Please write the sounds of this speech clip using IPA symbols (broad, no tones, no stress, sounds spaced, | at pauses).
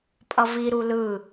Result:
pʼ ʌ v i ɾ u l ɯ